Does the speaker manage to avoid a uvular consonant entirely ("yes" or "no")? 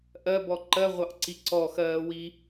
no